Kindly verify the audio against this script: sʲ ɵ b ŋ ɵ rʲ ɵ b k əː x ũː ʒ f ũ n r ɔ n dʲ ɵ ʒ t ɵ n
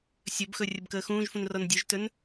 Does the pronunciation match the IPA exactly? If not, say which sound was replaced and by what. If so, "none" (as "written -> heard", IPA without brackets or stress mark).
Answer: ŋ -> x